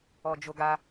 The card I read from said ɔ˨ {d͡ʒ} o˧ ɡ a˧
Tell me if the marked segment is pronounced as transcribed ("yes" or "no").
yes